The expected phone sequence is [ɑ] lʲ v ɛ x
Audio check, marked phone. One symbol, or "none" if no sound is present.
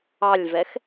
ɑ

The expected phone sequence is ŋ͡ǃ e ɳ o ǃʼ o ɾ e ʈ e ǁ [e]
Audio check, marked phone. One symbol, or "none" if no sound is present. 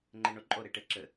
ɘ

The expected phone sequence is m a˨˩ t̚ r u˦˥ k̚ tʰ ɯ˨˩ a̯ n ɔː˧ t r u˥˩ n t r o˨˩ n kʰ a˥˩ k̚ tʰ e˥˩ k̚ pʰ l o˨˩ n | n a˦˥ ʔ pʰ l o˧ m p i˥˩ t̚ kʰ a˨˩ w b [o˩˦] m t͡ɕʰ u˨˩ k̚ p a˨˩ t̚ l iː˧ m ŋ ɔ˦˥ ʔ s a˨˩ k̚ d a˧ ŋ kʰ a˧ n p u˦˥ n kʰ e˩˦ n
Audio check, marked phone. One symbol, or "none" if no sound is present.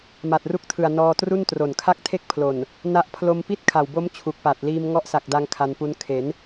o˦˥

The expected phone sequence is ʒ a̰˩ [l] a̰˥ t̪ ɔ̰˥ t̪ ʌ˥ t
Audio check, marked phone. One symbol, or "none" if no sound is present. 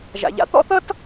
ʎ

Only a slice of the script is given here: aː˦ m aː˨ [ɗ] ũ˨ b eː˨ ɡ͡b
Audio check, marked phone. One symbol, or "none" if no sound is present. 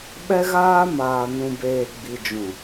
n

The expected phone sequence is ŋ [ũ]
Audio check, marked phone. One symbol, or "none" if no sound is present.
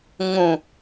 ũ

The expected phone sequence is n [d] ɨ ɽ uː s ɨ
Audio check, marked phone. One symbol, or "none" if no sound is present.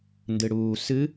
d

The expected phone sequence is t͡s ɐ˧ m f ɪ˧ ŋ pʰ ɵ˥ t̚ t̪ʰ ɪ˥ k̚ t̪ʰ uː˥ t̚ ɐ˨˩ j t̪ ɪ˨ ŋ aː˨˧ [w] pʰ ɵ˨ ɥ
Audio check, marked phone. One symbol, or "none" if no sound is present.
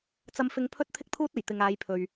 j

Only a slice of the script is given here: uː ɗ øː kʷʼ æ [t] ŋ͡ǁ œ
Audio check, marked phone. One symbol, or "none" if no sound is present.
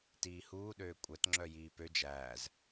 t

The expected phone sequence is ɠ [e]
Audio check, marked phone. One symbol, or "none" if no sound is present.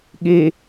e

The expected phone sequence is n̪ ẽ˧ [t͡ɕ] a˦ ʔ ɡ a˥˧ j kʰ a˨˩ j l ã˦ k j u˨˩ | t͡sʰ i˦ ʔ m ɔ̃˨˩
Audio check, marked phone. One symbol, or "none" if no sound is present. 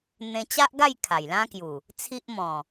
t͡ɕ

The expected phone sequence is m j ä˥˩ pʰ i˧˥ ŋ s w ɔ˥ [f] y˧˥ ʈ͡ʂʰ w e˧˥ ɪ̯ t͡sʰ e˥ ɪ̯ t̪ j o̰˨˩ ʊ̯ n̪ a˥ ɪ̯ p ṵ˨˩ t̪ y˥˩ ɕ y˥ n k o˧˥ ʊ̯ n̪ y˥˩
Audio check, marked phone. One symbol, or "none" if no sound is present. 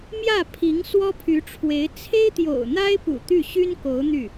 pʰ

